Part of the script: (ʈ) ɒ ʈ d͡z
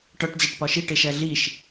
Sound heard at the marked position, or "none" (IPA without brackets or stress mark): ʈ